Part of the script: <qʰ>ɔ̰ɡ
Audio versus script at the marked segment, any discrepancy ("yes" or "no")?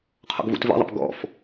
no